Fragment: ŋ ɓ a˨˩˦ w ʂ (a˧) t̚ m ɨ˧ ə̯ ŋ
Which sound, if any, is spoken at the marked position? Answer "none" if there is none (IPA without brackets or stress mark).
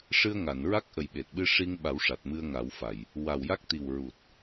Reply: a˨˩